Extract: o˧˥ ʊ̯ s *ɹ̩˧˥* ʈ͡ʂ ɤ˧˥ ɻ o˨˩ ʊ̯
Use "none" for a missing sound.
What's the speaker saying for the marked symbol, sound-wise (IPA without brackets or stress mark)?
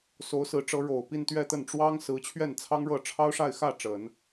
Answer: ɹ̩˧˥